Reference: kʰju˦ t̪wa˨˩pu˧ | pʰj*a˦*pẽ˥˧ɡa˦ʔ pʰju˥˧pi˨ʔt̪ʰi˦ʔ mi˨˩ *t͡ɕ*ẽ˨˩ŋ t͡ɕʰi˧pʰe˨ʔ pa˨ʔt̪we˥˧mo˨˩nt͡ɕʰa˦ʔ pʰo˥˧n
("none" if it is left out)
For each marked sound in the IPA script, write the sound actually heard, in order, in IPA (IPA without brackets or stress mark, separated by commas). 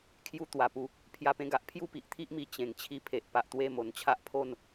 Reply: a˦, t͡ɕ